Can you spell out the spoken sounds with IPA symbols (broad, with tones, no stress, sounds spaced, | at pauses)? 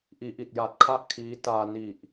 ʔ iː˩˦ ʔ i˨˩ t̚ j a˨˩ t̚ kʰ a˥˩ ʔ kʰ iː˦˥ t aː˧ n i˨˩ ʔ